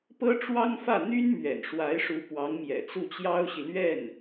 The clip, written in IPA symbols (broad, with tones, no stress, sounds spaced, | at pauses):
p ɤ˥ ʈ͡ʂ w ɑ˥ ŋ f ä˥˩ n̪ y˥ n m ɥ ɛ̰˨˩ n ʂ w a˧˥ ɪ̯ ʂ u˧˥ p w ɑ˧˥ ŋ m j ɛ̰˨˩ t͡s u˥˩ t͡ɕ j ɑ˥ ʊ̯ ɕ i˨ l ɥ ɛ˥˩ n